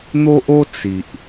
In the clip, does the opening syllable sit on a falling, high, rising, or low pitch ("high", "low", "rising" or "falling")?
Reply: high